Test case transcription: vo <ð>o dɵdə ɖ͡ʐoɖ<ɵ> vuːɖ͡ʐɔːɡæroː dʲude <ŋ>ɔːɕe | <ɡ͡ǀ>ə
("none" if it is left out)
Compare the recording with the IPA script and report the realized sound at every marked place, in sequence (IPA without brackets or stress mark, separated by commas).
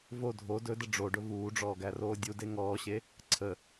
dʱ, ɵ, ŋ, ǀʰ